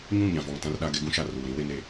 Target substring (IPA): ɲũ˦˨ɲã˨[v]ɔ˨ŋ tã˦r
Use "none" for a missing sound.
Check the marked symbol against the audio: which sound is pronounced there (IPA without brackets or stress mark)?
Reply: v